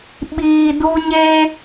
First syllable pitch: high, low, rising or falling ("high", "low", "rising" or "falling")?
low